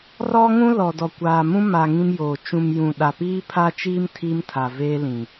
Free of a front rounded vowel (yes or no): yes